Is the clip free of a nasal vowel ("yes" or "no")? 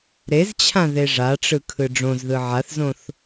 no